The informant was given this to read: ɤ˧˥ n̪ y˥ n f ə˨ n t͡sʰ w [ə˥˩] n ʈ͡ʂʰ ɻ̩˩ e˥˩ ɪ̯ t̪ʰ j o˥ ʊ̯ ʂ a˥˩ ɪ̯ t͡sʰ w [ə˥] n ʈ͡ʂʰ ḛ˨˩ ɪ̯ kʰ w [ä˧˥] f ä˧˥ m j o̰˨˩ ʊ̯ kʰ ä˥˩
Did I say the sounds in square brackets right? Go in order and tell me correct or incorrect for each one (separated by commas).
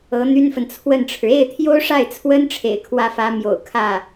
correct, correct, incorrect